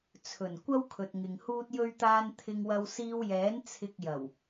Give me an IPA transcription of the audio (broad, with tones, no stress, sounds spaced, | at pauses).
t͡sʰ ɵ˨˩ n kʷ ɐ˥ w kʰ ɵ˨ t̚ ŋ ɪ˨ ŋ h uː˥ t̚ j ɵ˥ ɥ t̪ aː˥ n t̪ʰ ɪ˧ ŋ w ɐ˧ w s iː˧ w j ɛː˨˥ n t͡sʰ ɪ˧ k̚ j ɐ˨˩ w